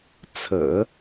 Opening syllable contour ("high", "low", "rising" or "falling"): low